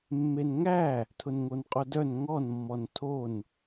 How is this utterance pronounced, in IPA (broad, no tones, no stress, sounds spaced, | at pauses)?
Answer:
mː e n ŋ æ | tʰ ʊ n ŋ o n qʼ o d œ n ŋ ɔ n mː ɔ n tʰ o n